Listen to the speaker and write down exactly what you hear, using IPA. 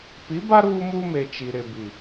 p i˨˦ b a˦ ɾ uː˦ m uː˦ m e˨ t͡ʃ i˨ ɾ ɪ˨ b i˨

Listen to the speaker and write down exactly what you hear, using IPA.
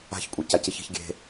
a̤ ç kʷʼ i c a c i ç i̤ ç ɡʲ e̤

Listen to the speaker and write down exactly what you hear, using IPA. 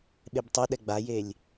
ɓ e b tˤ u ɗ ɛ ɡ͡b a j e lʲ

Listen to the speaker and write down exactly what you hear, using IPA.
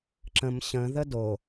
ǁ ə̃ m ɕ ə̃ ð ə d o

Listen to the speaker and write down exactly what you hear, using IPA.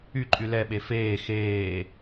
y ǃʼ y l ɛ ɓ e f eː x eː

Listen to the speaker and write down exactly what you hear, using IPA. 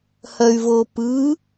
h ɐ y̯ v o p ɯ

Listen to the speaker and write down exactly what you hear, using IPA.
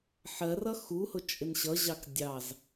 ħ ɜ r ʌ x u h ʊ t͡ʃʼ ɪ n ɕ ʌ ʑ ɑ k dʲ ɑ z

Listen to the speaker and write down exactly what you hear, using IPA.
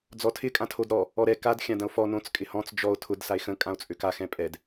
d͡z ɔ tʰ ɪ kʼ ã tʰ o d ɾ ɔ | ɔ ɾ ɛ k a d xʲ ã d ɐ̃ o̯ f ɔ n õ t͡s kʼ ɪ h ɔ̃ t͡s d͡ʒ ɔ o̯ tʰ ʊ d s a e̯ x ə̃ kʼ ã o̯ t͡sʼ ø k a x ɛ̃ pʼ ɛ d

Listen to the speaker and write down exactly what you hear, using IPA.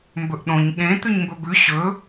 m b ɵ ʔ ɗ õ ɲ ɠ ẽ t̪ ʉ ɲ m b ɵ b ʉ ɕ ɵ

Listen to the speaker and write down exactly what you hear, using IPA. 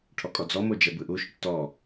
ʈʰ ɔ kʼ ɔ d͡z ɔ m o d͡ʒ ɛ b ɯ ʔ u ʃ ɔ ʈ t ɔ

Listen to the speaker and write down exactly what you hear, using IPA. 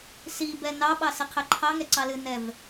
s i b ɛ n ɑ ɓ ɑ s ɪ qʰ ɛ ǃʰ ɑ ŋ ɛ ǀ ɑ l ɨ n ɛ v

